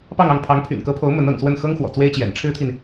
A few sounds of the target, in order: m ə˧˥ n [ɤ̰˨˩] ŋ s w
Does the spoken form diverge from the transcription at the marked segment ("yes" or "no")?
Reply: no